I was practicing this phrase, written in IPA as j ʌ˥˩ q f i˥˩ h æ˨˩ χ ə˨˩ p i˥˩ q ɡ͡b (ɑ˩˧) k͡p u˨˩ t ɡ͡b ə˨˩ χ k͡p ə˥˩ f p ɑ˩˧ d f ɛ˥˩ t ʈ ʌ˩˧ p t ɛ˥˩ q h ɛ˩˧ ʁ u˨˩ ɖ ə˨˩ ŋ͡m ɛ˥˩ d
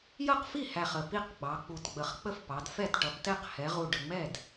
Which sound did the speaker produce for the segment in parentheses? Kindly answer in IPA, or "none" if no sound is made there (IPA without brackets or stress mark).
ɑ˩˧